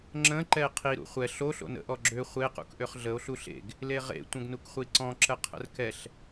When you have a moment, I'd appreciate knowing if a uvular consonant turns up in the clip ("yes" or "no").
yes